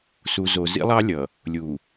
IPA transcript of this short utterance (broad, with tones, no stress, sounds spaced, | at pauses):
s u˨ z o˨ z ḭ˦ lˠ ɑ˦ lʲ ʌ˨ | lʲ u˨